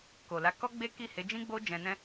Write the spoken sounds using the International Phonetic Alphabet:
k o˨ l a˨˦ k ɔ˦ ɡ͡b e˦ k i˦˨ h e˨˦ d͡ʒ ĩ˦ ɡ͡b o˦ d͡ʒ ɛ̃˧ n ɛ̃˦

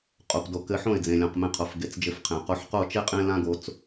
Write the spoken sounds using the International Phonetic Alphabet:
qʼ o˨ p d o˨ k ɘ˧ ħ õ˦˨ ɪ̯ d͡z ẽ˨ lʲ õ˨ q m ẽ˧ qʰ o˨ f ɡ e˨ t͡s d͡ʒ ɘ˧ f qʰ ẽ˨ q o˧ ħ q o˦˨ t͡ʃ e˦ qʼ ẽ˦ l ã˦ ɡ o˧ t͡s

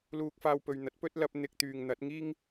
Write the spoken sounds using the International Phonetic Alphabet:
l uː˧ k̚ f aː˧ w p ɵ˨ ɥ n̪ ɐ˨˥ t̚ p ɵ˥ t̚ l ɐ˧ p̚ n̪ ɪ˧ k̚ t̪ yː˨ ŋ n̪ ɐ˨˥ t̚ ŋ iː˥ ŋ

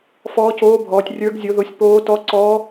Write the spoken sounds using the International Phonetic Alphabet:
f ɔː˧˥ c oː˧˥ bʱ ɔː˩˧ tʲ rʲ ə˞˧˥ ɡ zʲ o˧˥ ð o˧˥ sʲ p oː˧˥ t ɔ˧˥ ǀ ɔː˧˥

